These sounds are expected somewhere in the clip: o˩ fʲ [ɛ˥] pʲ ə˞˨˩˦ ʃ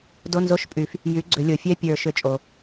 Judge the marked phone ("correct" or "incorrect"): correct